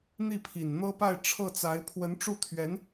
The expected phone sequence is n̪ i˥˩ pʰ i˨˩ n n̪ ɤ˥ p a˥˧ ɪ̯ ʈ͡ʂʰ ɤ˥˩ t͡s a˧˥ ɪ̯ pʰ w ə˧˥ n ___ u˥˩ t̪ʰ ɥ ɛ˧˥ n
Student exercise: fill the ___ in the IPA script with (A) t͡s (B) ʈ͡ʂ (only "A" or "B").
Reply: B